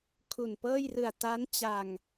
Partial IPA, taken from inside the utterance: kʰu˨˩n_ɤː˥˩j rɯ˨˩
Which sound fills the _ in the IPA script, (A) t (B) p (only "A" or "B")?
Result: B